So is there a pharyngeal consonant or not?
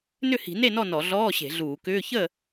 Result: no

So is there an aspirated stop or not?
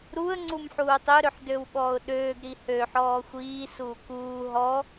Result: no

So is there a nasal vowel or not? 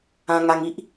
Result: yes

